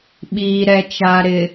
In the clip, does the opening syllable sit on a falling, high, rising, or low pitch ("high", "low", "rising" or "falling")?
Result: low